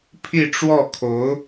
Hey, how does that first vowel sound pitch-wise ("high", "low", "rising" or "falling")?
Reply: falling